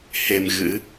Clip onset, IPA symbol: h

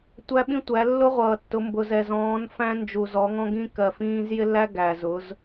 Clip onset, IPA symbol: tʷ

